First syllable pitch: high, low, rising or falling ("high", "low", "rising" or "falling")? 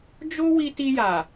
high